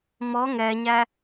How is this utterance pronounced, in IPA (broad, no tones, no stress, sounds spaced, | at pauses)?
m ɔ ŋ ɛ ɲ æ